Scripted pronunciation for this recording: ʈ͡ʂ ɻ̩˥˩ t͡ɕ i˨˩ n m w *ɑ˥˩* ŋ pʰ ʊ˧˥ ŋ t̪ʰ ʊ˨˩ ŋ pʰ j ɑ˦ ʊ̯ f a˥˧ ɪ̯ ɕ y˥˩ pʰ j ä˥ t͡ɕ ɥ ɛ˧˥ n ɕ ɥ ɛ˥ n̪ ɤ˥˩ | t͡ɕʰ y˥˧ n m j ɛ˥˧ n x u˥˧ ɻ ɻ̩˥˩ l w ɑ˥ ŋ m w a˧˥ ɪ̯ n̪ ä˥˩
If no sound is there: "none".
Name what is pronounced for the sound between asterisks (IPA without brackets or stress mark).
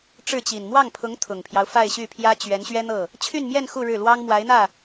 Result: ɑ˥˩